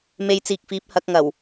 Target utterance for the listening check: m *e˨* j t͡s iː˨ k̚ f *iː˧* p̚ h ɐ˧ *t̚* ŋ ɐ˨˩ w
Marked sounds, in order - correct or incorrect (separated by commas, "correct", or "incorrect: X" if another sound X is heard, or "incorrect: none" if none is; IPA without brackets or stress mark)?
correct, incorrect: iː˨˥, incorrect: k̚